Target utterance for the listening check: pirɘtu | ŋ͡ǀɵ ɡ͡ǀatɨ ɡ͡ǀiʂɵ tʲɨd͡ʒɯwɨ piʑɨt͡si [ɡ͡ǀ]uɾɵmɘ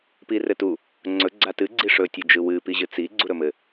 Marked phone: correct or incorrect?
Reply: correct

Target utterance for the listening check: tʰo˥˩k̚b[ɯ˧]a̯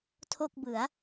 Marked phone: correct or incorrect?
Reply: incorrect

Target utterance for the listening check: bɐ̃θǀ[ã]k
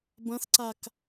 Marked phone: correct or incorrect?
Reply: incorrect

